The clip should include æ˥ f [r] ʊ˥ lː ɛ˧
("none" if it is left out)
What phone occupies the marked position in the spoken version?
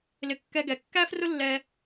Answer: r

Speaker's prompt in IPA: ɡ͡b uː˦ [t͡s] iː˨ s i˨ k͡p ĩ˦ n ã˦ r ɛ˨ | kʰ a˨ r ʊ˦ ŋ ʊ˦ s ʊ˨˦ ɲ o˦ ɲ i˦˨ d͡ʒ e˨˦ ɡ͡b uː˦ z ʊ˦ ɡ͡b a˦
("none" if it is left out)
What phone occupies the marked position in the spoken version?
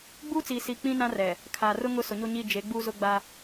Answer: t͡s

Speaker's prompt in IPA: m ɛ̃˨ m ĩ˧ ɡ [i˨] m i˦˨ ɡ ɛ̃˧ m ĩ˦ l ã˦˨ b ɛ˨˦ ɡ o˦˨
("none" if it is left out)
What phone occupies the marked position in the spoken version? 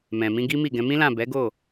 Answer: i˦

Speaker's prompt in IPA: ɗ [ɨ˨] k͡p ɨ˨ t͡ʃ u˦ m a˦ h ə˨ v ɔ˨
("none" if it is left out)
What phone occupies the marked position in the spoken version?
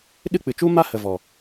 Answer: ɨ˦˨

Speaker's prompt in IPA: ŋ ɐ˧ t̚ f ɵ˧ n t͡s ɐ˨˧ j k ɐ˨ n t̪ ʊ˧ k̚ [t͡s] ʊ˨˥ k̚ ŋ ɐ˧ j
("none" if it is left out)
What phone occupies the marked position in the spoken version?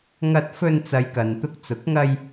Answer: t͡s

